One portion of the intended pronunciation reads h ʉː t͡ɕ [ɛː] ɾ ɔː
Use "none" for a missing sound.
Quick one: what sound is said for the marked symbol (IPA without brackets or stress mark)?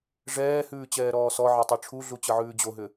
ɛː